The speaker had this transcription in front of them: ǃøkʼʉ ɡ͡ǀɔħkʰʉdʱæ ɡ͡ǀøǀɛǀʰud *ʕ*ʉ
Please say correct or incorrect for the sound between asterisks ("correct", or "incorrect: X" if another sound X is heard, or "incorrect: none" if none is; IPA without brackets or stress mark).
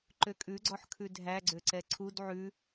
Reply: correct